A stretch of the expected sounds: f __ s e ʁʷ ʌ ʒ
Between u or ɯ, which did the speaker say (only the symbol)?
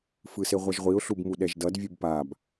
ɯ